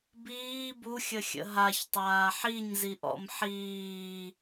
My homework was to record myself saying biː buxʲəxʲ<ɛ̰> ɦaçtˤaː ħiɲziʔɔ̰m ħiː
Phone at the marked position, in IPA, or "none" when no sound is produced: ə̰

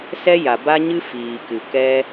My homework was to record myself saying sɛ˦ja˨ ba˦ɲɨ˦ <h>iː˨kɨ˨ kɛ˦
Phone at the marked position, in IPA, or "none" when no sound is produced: f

